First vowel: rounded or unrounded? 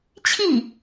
unrounded